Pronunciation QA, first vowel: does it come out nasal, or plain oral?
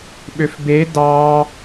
oral